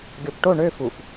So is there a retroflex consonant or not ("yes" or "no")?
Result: yes